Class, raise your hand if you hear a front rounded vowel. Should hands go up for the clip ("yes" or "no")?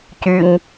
yes